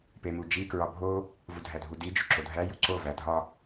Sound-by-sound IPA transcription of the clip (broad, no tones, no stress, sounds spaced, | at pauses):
p e m u d͡ʒ i k ɹ ɒ bʱ o | v u dʱ æ dʱ u d i d͡ʒ o ǁ o dʱ æ j u ǀ o v æ dʱ ɒ